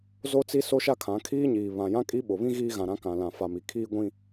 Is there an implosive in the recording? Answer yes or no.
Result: yes